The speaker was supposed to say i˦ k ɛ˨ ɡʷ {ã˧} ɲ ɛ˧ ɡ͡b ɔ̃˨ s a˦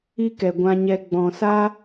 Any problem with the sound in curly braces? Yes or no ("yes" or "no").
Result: no